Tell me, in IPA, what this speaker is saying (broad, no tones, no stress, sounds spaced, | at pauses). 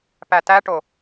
p æ t æ ʈ o